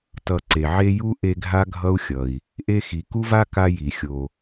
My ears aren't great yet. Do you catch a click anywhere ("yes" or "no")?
yes